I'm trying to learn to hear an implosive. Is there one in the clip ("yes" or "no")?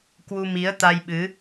yes